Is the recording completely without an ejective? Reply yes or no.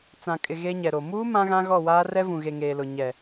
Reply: no